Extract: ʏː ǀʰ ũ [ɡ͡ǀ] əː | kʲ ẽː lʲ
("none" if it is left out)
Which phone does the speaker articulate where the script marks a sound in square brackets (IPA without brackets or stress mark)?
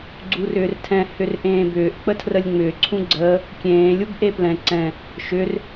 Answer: ɡ͡ǀ